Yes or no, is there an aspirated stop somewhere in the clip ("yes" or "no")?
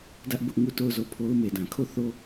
yes